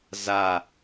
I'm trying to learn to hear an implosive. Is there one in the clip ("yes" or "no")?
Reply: no